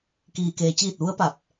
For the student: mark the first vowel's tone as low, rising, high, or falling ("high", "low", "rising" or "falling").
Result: low